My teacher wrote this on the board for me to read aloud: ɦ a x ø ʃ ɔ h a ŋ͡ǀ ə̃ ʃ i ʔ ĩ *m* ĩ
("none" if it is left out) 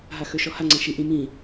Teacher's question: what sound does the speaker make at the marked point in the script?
m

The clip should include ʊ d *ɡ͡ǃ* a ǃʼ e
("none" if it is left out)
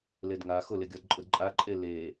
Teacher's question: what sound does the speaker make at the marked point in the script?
ǃʼ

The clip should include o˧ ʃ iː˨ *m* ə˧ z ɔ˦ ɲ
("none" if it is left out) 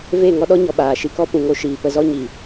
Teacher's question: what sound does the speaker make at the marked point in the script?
p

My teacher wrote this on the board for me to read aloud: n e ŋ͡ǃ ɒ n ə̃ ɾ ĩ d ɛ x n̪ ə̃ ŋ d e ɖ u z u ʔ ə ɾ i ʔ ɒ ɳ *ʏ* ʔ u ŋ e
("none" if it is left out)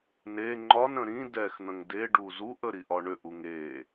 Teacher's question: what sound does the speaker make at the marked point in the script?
ʏ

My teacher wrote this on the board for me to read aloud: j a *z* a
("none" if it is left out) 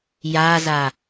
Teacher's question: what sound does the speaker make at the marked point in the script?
z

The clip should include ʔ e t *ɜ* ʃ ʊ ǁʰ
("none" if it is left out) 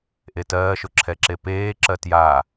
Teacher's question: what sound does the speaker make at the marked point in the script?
ɜː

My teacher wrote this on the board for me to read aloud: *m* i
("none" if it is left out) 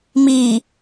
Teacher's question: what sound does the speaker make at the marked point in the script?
m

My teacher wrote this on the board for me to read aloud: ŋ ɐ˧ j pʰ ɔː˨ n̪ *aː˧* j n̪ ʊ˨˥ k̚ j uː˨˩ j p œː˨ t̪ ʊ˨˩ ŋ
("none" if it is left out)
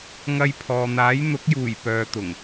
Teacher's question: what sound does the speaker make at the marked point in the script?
aː˨˥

